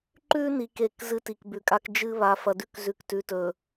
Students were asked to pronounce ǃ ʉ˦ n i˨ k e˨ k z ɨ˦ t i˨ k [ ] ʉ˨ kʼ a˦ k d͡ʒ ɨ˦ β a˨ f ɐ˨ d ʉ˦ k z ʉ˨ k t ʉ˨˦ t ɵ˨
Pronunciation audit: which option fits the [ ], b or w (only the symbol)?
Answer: b